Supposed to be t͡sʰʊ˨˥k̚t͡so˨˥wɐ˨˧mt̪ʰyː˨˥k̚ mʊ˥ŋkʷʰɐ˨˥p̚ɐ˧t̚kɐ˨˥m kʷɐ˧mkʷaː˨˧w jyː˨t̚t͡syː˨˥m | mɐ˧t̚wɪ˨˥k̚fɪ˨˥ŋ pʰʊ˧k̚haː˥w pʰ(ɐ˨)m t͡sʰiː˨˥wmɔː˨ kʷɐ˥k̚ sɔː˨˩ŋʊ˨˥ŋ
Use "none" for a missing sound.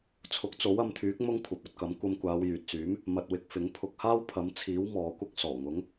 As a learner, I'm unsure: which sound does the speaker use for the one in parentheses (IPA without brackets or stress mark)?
ɐ˨˥